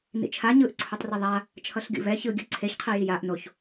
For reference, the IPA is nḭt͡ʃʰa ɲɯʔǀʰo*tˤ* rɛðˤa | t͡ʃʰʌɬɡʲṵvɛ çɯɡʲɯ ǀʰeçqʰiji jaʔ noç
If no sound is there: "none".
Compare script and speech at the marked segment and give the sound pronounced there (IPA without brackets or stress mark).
tˤ